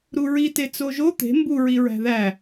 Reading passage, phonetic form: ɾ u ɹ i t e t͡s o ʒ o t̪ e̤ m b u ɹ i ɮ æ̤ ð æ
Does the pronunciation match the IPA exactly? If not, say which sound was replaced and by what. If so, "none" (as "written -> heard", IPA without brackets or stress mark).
ɮ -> ɹ